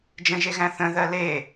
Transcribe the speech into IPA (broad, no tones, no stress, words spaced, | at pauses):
d͡ʒə̃ʒeɣæ̃ θə̃ðɜ le